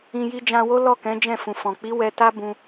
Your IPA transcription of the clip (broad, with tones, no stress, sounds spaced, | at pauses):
ĩ˨ j i˧ d͡ʒ ã˧ w o˦ l ɔ˦˨ k ɛ̃˨˦ d͡ʒ ɛ̃˦˨ f ũ˨ f ɔ̃˨ k͡p i˨˦ w ɛ˧ t a˦ b ũ˧